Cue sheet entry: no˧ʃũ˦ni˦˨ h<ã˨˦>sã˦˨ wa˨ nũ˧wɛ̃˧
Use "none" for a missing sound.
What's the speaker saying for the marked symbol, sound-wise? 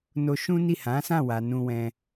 ã˨˦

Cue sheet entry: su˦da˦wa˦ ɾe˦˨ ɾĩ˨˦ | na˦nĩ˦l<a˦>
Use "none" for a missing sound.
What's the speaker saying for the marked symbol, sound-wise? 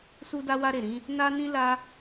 a˦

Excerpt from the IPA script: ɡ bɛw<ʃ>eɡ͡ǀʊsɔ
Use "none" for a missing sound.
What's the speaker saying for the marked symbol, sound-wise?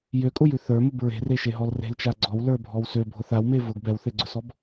θ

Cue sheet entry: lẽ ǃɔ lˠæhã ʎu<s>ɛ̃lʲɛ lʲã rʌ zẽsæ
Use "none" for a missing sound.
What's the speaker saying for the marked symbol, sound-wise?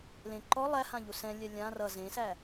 s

